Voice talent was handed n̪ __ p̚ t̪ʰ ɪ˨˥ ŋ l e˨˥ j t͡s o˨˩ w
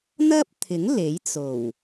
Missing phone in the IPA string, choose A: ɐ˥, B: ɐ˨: A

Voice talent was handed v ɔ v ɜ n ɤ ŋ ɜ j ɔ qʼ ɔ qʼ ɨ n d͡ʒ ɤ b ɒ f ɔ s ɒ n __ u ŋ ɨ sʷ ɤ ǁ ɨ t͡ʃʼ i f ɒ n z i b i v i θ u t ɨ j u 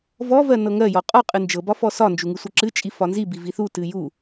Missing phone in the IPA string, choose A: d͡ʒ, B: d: A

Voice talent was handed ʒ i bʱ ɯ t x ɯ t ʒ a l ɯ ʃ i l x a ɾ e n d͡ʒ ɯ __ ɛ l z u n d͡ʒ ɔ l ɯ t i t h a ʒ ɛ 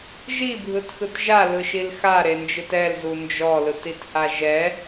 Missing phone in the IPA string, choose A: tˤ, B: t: B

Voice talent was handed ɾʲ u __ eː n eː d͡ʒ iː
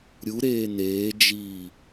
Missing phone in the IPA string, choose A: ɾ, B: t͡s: A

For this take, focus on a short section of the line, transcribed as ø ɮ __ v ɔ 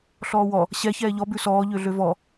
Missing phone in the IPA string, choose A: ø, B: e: A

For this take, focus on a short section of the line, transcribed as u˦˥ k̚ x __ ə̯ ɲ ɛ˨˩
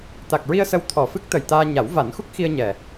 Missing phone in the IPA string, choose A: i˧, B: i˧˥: A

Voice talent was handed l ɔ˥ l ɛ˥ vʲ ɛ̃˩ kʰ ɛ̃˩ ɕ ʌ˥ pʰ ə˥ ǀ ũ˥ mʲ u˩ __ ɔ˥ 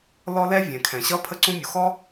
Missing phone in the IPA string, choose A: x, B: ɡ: A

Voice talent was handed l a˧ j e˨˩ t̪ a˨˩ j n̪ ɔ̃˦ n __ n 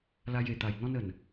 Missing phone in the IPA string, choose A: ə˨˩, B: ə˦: A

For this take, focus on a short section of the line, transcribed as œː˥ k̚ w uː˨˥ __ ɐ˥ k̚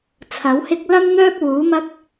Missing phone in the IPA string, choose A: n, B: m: B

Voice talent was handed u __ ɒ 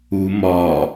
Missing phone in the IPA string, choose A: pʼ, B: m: B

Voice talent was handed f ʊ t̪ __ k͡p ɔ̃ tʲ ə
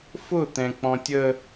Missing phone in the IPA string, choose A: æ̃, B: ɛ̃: B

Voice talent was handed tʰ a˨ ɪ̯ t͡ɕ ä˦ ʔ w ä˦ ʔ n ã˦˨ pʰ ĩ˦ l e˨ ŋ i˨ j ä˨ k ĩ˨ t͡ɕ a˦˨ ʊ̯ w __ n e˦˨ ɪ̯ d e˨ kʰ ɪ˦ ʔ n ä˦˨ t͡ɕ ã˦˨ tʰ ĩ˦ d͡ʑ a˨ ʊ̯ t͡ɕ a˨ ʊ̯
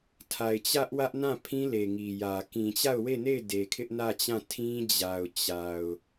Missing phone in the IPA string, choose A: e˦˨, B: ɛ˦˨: A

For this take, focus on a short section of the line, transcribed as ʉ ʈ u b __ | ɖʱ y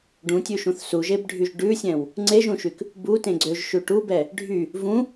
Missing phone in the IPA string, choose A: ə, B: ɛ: B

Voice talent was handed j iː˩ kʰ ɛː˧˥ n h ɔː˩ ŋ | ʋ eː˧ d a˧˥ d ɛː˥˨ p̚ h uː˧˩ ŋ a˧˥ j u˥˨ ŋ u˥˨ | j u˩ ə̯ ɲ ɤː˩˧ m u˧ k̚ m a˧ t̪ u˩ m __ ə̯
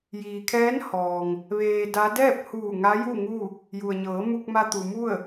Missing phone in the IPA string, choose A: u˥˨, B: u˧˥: A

